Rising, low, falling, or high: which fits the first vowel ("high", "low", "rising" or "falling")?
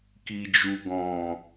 low